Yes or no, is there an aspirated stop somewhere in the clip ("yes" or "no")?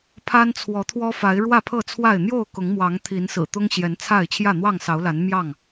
yes